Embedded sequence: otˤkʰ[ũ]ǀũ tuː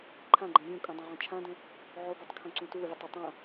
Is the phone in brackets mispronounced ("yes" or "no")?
yes